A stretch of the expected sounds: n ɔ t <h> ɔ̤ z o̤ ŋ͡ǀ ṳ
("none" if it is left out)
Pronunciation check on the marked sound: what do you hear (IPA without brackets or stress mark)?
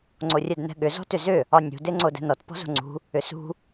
p